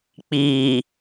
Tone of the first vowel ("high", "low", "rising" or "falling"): low